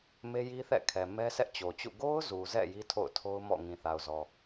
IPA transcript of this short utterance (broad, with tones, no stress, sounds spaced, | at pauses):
m e˦ j i˦ θ ɛ̰˦˨ kʰ ɛ˨ m ɛ˦ sʰ ɛ˦ ʔ t͡ɕ o˨ t͡ɕ ṵ˦˨ ɡ o˦ ʊ̯ z u˨ z ɛ̰˦˨ j i˦ tʰ o̰˦˨ ʊ̯ tʰ o˦ ʊ̯ m ɔ̰˦˨ ŋ ĩ˨ θ a˨ ʊ̯ z ɔ˨